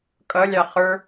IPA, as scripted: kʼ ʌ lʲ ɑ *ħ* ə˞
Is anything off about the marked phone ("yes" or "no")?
yes